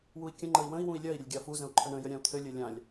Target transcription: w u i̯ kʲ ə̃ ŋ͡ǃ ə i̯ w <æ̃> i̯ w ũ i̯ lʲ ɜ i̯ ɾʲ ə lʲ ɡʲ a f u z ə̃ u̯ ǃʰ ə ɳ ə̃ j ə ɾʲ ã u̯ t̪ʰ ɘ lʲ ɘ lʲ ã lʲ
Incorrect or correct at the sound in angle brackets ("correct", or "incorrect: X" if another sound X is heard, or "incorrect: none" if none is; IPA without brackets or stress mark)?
incorrect: ə̃